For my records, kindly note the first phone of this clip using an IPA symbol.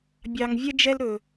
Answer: bʲ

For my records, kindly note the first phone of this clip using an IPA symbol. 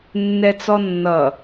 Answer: nː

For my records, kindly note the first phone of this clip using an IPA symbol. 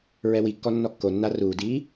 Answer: ɹ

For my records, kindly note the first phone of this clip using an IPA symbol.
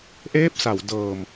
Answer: ʔ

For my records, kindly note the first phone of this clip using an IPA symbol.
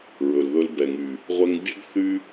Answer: ɹ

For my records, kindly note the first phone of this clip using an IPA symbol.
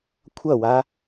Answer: kʷʰ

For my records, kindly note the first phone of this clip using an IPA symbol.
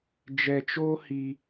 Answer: d͡ʒ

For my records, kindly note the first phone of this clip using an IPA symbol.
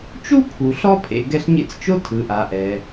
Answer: t͡ʃ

